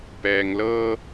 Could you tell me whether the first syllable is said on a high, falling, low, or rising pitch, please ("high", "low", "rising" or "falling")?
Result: low